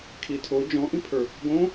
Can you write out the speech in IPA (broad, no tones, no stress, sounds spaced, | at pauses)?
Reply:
kʰ i tʰ o d͡ʒ ɔ̃ ʔ ĩ pʰ ə˞ | ɡ õ